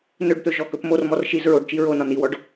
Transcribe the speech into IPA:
n ɵ ɖ t̪ ɵ ʒ ɔ k ɵ p m o r m ɔ r ʃ i z ɹ o ɖ t͡ʃ i ɹ o n ɒ n i w ɔ ɖ

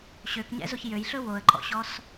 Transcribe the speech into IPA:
ɕ ø k ɲ ɛ̰ z o ç j ø j ɬ ɵ w o ə̯ ǃ ɔ̰ ɕ ɔ s

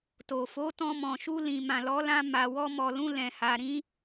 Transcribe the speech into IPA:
t o˨ f o˨˦ t ɔ̃˧ m ɔ̃˨ ʃ u˧ l ĩ˨ m ã˨ l ɔ˨˦ l ã˧ m a˨ w ɔ˧ m ɔ˨ l ũ˧ l ɛ̃˨ h a˨ ɾ ĩ˨˦

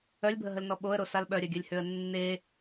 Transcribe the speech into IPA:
œ lʲ bʱ ə ɦ ə l n ɔ ɓ o ə̯ ɾ o s a l ɓ œ ɾʲ œ ɡʲ œ lʲ h ø ə̯ nː e

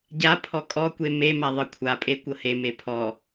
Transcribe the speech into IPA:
ɟ a pʰ ɔ kʼ ɔ kʷ e m e m a ðˤ ɤ kʷʰ a pʼ e kʷ ɤ h e m e pʰ ɔ

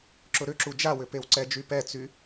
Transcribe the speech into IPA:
ǁ ʊ ɾ ʏ ǁ u d͡ʒ a w ʏ p e w ǀ ɛ d͡ʒ y p ɛ t͡s y

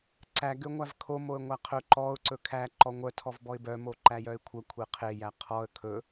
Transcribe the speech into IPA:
ǀ æ ɡ ø ŋʷ æ v kʰ o m o ə̯ ŋʷ æ qʰ ɵ ǃ ɔ ʊ̯ ǀ ɵ kʰ æ ǃ ɔ ŋʷ œ tʰ ɔ v b ɔ ɪ̯ b œ m o ǃ æ j œ ɪ̯ kʷʰ œ kʷʰ e qʰ e j æ qʰ ɔ ə̯ kʰ ɵ

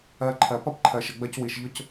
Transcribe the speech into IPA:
ɜ˧ ǃʰ ɜ˨ p ʌ˦ p ǃʰ ɜ˨ ʃ ə˨ ɡ͡b ɜ˧ c w i˨ ʃ ʎ ʊ˦ c

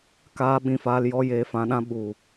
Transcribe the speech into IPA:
k aː˧ ɓ ĩ˨ f aː˧ l j ɔ˧ j eː˧ f ã˧ ɗ ã˦ ɓ u˨

